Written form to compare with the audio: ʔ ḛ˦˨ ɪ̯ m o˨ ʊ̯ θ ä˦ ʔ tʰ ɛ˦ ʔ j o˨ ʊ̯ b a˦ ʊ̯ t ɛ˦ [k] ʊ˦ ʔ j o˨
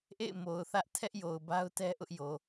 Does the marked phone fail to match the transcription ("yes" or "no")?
yes